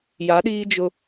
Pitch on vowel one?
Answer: rising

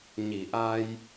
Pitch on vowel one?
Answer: low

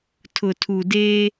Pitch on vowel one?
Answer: low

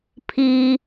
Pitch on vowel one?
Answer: high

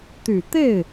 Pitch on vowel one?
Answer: low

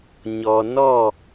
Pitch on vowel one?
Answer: low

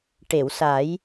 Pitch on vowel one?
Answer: low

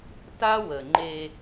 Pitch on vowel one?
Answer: high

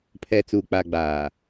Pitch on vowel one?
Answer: low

